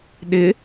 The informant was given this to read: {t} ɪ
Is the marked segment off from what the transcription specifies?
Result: yes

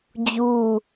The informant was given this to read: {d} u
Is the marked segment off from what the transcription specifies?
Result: yes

